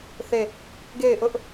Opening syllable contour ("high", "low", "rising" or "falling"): falling